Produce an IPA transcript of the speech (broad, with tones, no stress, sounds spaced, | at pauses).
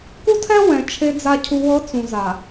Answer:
k u˦ tʰ ɛ˦ w ɛ̃˨ t͡ʃʰ e˨ d͡z a˨ cʰ u˨ w ɤ˨˦ t͡s ũ˨ z a˨